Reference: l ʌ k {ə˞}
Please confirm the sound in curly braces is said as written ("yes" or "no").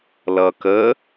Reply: no